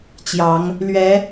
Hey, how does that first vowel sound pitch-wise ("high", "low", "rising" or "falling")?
rising